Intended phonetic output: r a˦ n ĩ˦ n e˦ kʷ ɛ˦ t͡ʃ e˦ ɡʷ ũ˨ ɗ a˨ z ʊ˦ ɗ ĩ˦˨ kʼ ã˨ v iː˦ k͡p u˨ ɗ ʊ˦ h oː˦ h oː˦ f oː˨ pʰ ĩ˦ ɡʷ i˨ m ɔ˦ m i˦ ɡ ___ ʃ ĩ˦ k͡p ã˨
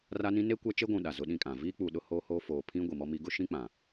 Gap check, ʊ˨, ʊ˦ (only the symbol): ʊ˦